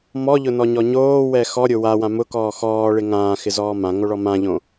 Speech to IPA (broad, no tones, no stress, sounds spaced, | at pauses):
m ɔ ʎ ʊ n ɔ ɲ ɔ ɲ oː w ɛ x ɔ ɾʲ ʊ w a w ã m ʊ k ɔː x ɔː ɭ ɪ ŋ ãː x ɪ z ɔː m ã ŋ o ɭ ɔ m ã ʎ õ